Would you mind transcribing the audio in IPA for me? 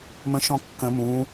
m ə̃ ʃ ɔ̃ kː ə̃ m ũ

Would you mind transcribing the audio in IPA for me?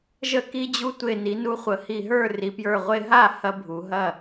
ʒ ə˧ k i˧ d͡ʑ u˧ tʷ e˧˩ n i˩˧ n u˧ χʷ ə˩˧ h i˧˩ ɦ ə˞˥˩ r i˩˧ p j ə˞˧˩ ʁʷ e˧ ɦ a˥˩ h ɐ˧ bʱ u˩˧ ɦ ɐ˥˩

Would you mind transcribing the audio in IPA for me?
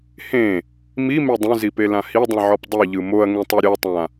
h ẽ | m i m e dˤ ũ z i p e l ã h i dˤ ĩ ʕ ɔ p dˤ i ʎ ɯ m o ɐ̯ ŋ ẽ tˤ ɛ ɾʲ ɤ tˤ ã

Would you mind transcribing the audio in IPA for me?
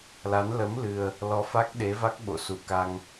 l a˨˦ n l ə˨˦ m l ɨ˨˩ ə̯ | l ɔ˨˦ f a˦˥ k̚ ɗ e˨˦ v a˦˥ k̚ ɓ o̰˧˨ s u˧˩ k a˧ ŋ

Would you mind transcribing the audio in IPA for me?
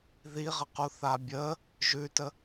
ð i ʁ ə q u θ a bʲ ə | ʒ ʉ t ə

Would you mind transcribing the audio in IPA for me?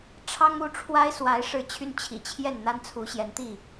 ʈ͡ʂʰ ɑ˦ ŋ u˥˨ ʈ͡ʂʰ w a˦ ɪ̯ s w a˨˦ ɪ̯ ʂ ɻ̩˨˦ t͡ɕʰ y˦ n t͡ɕʰ ḭ˨˩ t͡ɕʰ j ɛ˥˨ n n̪ a˦ n t͡sʰ u˨˦ ɕ j ɛ˨˦ n t̪ i˥˨

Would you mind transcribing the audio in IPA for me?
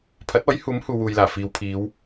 pʰ ɐ˨˥ t̚ ɔː˨˥ j h uː˨˥ m h uː˨ w uː˨ j l aː˨˩ f iː˨˧ w pʰ iː˨˧ w

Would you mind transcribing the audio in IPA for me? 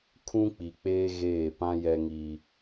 kʰ ũ˦ k͡p i˨ k͡p eː˦ ɣ eː˦˨ p ã˦ j ɛ˦ ŋ i˦

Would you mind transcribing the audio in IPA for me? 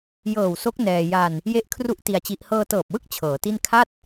j ɤː˨˩ w s o˦˥ k̚ n ɛː˧ j a˧ n | j e˦˥ ʔ kʰ r u˦˥ ʔ t i˧ a̯ t͡ɕ i˦˥ ʔ h ɤː˧ t ɤː˨˩ p̚ w ɯ˥˩ k̚ t͡ɕʰ ɤː˩˦ t i˥˩ n kʰ a˥˩ t̚

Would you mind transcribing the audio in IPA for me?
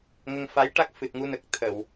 ŋ ə˧ ŋ f a˧˥ j ʈ a˦˥ k̚ f ɨ˨˩ t̚ ŋ u˧ n ə˨˩ k̚ t̪ʰ ə˨˩˨ w

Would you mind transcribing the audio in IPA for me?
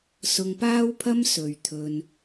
s ʊ˧ ŋ p aː˥ w pʰ ɐ˥ m s ɵ˨ ɥ t̪ʰ ɵ˧ n

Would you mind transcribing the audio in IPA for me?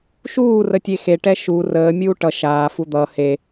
ʃ uː r ə tʲ e x e ʈ ɛ ʃ u r əː mʲ uː ʈ ʌ ʃ aː f u d̪ ʌ h e

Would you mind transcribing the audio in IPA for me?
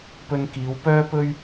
p ɵ˧ n k iː˨˧ w p œː˥ p ɵ˥ ɥ

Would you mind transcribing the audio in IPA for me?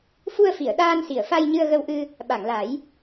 f u˧ ə̯ f i˨˩˨ ə̯ ɗ aː˧ n s i˨˩˨ ə̯ f a˧ j ɲ ɨ˧ ə̯ ɣ ə˧ w ʔ ɨ˧ | ɓ a˨˩˨ ŋ l a˨˩˦ j

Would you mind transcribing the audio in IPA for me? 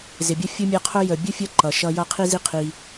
z ɪ˨ bʲ ʌ˥ fʲ ʊ˥ mʲ ʌ˦ qʰ ʊ˥ j ə˨ bʲ ʊ˥ fʲ ʌ˦ ǃ ʌ˩ ʃ ʌ˦ j ʌ˦ qʰ i˥ z i˦ qʰ i˨

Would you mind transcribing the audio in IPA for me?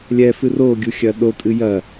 lʲ ɛ f ɨ r o ɡʲ u xʲ ɐ ɗ o tʼ ɨ j ɐ

